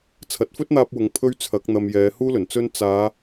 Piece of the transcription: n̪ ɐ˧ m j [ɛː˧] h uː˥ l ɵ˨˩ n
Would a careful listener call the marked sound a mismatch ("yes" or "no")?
yes